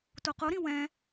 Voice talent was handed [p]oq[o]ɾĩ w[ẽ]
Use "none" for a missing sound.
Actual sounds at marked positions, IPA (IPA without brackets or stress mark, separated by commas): t, o, ɛ̃